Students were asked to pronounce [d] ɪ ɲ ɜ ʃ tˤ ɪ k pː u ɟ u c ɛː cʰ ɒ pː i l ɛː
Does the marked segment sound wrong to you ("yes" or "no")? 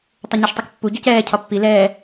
yes